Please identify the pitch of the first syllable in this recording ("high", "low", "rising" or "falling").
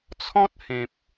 high